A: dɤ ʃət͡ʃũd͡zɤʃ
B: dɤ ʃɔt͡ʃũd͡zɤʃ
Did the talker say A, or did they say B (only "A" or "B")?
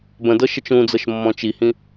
A